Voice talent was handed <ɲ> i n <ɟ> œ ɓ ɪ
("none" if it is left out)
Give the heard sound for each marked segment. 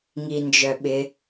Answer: ŋ, d͡ʒ

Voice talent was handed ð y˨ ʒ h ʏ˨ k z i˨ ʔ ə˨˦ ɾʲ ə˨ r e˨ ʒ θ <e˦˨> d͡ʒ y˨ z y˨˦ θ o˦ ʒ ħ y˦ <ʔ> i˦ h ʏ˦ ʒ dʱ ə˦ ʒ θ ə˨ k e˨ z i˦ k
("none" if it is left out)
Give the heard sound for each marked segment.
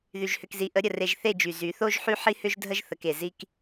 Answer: e˦˨, ħ

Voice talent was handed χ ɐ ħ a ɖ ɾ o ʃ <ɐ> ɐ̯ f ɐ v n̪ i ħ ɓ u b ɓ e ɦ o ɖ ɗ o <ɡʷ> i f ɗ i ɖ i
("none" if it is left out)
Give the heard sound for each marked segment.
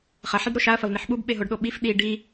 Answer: a, ɓ

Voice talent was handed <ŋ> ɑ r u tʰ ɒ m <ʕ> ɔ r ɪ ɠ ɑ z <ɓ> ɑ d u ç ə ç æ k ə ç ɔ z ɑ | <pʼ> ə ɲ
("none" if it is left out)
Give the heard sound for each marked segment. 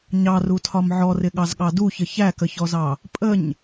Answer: ɲ, ʕ, ɠ, pʼ

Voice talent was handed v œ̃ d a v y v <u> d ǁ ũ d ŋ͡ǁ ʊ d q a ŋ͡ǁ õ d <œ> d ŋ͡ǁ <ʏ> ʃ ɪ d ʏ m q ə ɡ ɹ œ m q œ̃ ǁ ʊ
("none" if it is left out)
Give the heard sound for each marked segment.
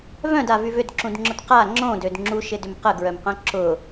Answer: ʏ, ø, u

